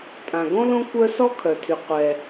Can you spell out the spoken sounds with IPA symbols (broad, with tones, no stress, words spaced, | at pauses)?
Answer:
tʼã˩ɡõ˥lõ˥ kʷœ˥ sɔ˥kʰœ˩tʰy˩ qʷɛ˩